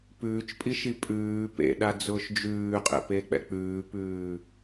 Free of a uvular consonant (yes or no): no